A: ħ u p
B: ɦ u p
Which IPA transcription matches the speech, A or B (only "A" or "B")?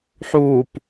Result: A